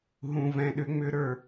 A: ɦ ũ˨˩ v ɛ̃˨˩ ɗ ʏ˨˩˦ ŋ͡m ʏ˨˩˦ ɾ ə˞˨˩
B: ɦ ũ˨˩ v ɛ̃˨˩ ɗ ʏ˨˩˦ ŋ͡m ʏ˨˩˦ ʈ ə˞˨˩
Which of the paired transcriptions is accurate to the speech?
A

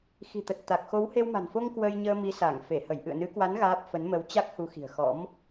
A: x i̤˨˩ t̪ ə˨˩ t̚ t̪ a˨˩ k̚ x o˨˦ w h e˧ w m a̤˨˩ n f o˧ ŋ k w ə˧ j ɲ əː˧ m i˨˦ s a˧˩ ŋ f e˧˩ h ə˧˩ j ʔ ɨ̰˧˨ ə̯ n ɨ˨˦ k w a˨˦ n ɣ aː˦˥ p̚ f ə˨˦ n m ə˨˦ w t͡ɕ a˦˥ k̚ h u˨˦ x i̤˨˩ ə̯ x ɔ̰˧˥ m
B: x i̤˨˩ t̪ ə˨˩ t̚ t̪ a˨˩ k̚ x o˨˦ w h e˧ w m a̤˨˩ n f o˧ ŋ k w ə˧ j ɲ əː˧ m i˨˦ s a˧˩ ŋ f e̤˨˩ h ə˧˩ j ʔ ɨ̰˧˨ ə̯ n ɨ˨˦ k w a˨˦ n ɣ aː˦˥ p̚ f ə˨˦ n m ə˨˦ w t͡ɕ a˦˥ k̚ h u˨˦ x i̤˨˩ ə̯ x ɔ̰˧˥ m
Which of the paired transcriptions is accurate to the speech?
A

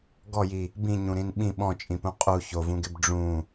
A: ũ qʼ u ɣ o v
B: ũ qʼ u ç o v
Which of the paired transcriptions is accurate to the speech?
B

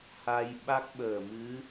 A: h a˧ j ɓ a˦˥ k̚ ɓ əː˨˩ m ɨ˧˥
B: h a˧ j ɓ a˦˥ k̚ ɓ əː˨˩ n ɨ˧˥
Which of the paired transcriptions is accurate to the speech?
A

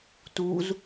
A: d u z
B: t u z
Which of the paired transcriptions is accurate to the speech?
B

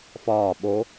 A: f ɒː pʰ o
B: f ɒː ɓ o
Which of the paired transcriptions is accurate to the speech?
B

